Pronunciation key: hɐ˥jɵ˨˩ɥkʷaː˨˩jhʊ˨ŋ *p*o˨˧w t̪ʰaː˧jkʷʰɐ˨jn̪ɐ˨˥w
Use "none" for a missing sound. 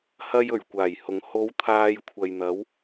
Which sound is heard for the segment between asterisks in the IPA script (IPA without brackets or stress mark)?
h